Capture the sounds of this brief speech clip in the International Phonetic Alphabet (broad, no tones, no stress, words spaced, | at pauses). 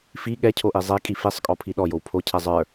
fi ɠɛcʰoʔi zˤekʼi fisˤkʼɔpʰi ɗɔjow pʰocʰɛ zˤə˞